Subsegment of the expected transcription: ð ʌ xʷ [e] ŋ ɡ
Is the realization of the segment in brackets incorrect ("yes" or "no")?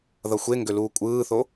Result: no